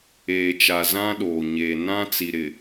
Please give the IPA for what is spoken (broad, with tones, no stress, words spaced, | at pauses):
eː˨t͡ʃa˨ zã˦ɗoː˨ ɲeː˨ nã˦t͡si˨ ɾɪ˨